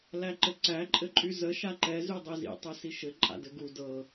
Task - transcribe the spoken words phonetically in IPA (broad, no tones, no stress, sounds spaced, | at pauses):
l æ ǃ ɘ ǀ æ ǃʼ ɘ ǃʼ y z ə ʃ a ǃ ɛ z y dˤ i z ḭ tˤ ɛ s i ʃ ɘ ǃʼ a̰ d ɘ ɡ u d ɤ